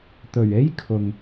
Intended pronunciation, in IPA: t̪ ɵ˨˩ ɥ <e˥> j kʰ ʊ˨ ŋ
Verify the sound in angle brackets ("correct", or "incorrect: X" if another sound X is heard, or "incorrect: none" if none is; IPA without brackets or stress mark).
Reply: correct